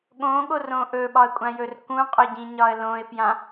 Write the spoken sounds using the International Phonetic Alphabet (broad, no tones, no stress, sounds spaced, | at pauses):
ɠ õ ɠ o r õ ʔ ɵ ɓ ɒ ə̯ kʷʼ ã j ɵ r k ũ qʼ ʏ ɟ ĩ ɲ ɒ ə̯ l õ ɪ̯ p j ã